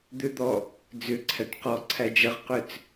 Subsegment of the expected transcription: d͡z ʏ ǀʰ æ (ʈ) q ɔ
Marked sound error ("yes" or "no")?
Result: no